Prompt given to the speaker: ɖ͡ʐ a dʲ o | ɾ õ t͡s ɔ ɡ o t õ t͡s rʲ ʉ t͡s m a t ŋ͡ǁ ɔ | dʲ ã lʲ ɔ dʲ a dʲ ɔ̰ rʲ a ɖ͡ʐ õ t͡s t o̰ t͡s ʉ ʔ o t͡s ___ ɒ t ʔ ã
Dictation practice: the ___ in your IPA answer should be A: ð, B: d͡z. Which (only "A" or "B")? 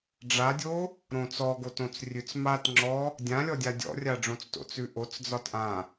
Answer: B